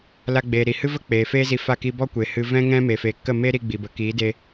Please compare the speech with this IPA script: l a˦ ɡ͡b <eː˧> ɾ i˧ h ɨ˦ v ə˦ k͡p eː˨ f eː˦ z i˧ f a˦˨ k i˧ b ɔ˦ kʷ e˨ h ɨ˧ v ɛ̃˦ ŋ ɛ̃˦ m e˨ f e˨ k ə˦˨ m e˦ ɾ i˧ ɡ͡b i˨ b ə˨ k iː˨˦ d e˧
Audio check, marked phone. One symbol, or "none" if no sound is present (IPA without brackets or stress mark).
eː˧